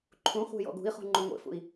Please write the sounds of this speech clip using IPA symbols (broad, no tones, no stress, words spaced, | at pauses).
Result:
ǃʰũχʷe̤ jɔ̰ɡṳi̯χṳ ŋ͡ǃuŋʷḛfṵi̯